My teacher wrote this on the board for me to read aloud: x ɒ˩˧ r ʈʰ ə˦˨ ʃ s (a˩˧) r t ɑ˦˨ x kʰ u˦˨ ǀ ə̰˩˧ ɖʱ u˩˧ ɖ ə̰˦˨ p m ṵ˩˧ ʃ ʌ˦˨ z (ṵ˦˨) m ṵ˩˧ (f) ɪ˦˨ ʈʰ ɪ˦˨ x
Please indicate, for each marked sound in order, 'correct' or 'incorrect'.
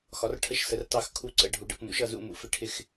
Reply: incorrect: ə˩˧, correct, correct

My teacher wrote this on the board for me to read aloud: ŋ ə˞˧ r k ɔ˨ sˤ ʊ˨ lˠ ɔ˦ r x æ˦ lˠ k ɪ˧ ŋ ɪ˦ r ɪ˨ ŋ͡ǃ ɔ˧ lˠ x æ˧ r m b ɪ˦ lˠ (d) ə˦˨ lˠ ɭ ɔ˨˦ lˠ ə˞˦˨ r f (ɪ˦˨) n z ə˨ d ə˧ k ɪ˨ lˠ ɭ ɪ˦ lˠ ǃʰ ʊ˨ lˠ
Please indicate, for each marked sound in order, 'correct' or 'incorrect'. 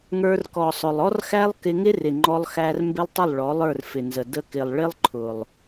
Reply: incorrect: tˤ, incorrect: ɪ˨

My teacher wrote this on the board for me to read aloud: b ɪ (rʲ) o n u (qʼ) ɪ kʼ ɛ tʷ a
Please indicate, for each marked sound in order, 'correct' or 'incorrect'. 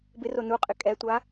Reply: incorrect: r, correct

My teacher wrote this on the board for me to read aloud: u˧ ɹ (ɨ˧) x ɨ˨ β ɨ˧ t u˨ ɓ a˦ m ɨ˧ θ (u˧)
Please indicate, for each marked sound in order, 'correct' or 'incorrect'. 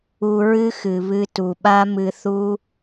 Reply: incorrect: ɨ˦, incorrect: u˦

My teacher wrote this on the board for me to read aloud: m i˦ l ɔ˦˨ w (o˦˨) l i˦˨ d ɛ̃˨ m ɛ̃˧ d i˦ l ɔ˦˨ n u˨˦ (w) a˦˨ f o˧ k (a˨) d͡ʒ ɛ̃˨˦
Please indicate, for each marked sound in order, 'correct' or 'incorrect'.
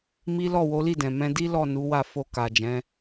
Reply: incorrect: o˨˦, correct, correct

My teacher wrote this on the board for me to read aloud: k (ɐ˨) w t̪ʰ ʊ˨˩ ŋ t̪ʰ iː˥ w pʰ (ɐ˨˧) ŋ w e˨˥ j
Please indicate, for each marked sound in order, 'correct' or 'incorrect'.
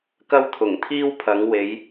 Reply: incorrect: ɐ˥, incorrect: ɐ˨˥

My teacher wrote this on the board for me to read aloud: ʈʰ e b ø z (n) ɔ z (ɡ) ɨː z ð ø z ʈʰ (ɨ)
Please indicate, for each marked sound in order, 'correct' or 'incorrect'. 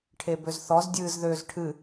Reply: incorrect: θ, incorrect: dʲ, correct

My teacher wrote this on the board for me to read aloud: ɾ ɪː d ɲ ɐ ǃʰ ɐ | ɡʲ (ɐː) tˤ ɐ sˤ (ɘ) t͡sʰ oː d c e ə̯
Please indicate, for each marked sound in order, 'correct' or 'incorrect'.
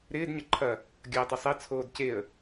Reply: correct, incorrect: ɛ

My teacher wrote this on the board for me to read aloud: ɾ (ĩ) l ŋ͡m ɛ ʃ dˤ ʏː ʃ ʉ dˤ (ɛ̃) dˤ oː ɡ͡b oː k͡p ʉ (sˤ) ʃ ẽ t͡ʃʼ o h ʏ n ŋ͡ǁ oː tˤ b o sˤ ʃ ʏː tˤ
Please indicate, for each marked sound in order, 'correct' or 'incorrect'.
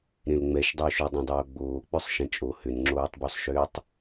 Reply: incorrect: ẽ, correct, correct

